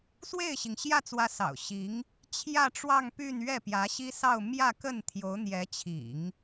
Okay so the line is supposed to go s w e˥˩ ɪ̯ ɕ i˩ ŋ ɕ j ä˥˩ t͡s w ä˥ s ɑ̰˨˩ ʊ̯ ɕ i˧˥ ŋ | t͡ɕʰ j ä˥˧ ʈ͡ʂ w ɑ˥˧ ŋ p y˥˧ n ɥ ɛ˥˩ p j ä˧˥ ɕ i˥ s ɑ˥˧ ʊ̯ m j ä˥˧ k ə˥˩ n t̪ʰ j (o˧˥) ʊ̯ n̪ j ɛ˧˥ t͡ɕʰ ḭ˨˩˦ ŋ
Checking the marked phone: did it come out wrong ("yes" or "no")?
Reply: no